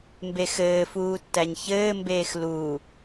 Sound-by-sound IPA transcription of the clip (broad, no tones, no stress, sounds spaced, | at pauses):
m b e x ɘː f uː tː æ ɲ ç ɘː m b eː x l uː